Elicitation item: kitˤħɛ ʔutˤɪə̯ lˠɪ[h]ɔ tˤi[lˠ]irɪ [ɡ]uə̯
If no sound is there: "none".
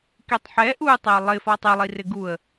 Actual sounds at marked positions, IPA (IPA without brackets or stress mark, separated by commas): f, lˠ, ɡ